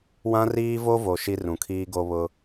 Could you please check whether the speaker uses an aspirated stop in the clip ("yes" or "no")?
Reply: yes